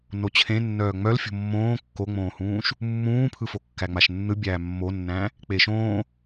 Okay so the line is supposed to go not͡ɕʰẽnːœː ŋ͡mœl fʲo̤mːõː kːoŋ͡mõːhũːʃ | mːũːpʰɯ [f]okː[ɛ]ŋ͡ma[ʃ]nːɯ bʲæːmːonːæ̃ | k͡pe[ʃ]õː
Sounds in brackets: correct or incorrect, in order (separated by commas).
correct, incorrect, correct, correct